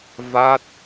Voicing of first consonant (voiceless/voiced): voiced